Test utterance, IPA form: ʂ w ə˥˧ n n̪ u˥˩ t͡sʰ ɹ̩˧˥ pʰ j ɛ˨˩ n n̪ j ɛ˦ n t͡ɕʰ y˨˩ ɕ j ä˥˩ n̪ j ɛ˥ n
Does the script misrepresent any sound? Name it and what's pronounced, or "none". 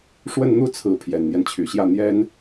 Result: none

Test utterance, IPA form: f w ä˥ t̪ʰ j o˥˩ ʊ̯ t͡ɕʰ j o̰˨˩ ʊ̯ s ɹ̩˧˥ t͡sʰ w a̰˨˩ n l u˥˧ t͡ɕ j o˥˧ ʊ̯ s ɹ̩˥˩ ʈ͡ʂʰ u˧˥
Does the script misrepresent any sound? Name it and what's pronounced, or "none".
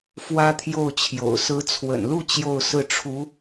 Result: a̰˨˩ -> ə̰˨˩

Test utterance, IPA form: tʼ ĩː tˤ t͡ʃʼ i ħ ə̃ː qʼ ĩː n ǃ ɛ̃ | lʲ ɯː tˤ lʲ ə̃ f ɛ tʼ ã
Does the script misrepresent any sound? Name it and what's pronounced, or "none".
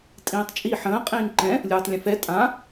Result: none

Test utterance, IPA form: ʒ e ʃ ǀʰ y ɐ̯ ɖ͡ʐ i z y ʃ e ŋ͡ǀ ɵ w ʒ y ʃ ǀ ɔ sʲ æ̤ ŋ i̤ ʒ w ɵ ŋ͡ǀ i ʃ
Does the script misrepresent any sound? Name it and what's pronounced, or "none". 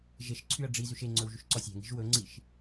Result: none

